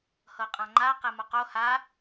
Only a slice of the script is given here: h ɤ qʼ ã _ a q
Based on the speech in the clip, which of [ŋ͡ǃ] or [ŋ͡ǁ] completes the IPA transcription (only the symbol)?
ŋ͡ǃ